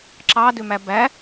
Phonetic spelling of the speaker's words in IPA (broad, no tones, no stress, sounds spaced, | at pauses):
ǁ ɑ d ø m æ b æ